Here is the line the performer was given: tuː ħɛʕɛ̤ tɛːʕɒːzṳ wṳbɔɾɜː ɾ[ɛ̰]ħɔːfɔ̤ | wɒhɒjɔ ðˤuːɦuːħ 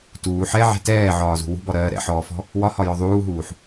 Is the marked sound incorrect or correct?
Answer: correct